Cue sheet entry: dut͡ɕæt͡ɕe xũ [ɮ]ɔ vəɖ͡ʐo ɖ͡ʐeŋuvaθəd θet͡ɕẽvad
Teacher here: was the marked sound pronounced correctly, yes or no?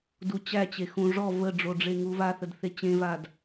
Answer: no